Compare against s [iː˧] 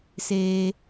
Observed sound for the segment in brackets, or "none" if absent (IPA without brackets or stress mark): eː˧